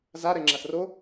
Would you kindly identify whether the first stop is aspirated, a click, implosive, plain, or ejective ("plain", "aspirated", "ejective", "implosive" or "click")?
click